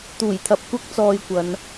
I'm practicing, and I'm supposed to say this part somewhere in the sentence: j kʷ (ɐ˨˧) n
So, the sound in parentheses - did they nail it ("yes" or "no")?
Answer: yes